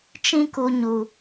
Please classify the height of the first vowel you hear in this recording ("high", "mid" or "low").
high